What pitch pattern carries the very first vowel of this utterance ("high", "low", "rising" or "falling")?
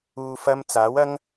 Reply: low